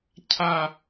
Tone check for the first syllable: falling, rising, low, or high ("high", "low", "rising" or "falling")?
falling